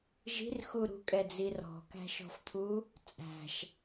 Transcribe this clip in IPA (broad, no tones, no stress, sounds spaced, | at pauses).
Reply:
ʒ i̤ r x u ɾ ṳ kʼ ɛ d͡z i r ɔ̤ k æ̤ ʃ ɔ̤ f t̪ʰ u | t͡sʼ æ̤ ʃ